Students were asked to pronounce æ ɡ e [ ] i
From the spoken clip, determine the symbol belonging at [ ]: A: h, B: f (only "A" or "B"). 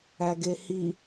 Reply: A